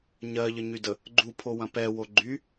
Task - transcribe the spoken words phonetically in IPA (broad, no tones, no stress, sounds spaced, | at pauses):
ɲ ɜ ʎ ə ɲ y d ə | ɡ͡ǃ u pʰ o w ɐ̃ p ɛ w o ɡ͡ǃ y